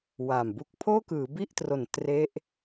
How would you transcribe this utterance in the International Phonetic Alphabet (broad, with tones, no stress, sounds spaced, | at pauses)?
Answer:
w aː˨˩ m b u˦˥ k̚ pʰ oː˥˩ k ɯː˩˦ b i˥˩ ʔ t r o˨˩ n t r e˦˥ ʔ